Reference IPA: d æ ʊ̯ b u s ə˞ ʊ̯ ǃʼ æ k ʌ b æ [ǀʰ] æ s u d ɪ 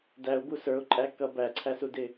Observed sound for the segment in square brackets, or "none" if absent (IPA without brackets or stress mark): ǀʰ